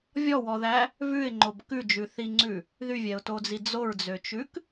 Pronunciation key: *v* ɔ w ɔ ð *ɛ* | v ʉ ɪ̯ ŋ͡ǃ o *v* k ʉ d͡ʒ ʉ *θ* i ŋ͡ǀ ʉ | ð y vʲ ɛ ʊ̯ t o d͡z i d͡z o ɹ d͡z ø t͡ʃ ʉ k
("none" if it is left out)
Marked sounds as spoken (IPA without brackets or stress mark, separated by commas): vʲ, æ, b, θ